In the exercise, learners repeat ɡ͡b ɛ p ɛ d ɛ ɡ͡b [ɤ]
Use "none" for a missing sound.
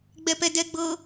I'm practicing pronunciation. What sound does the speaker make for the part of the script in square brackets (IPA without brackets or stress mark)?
ɤ